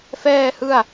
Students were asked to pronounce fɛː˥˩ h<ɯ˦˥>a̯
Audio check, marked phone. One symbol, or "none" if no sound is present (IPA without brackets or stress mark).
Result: ɯ˥˩